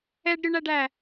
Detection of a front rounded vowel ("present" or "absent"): present